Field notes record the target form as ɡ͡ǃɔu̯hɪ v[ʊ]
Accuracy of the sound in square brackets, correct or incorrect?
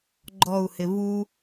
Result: incorrect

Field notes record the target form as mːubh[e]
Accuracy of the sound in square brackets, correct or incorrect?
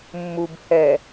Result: incorrect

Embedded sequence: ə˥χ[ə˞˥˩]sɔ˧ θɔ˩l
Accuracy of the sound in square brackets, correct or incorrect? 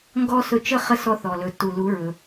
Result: incorrect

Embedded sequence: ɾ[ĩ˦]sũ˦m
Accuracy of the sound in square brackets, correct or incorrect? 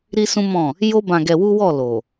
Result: incorrect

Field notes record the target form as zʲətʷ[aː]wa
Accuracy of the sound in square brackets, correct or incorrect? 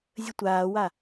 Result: correct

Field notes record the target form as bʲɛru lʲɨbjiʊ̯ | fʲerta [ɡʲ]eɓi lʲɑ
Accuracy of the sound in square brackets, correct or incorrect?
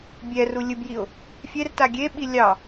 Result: correct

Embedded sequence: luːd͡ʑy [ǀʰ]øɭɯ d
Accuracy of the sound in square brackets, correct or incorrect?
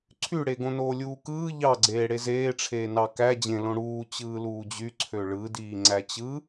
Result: correct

